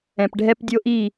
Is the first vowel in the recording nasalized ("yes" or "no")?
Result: yes